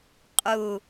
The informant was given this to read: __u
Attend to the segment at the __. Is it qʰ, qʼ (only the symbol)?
qʼ